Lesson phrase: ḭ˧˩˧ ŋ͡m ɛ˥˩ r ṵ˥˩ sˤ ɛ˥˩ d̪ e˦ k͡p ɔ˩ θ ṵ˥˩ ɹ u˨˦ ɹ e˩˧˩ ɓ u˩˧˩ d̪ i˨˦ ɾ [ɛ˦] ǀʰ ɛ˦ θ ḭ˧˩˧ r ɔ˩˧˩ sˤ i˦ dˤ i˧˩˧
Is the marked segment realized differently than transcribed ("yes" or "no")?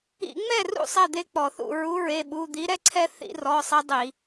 no